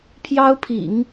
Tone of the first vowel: high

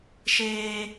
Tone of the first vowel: high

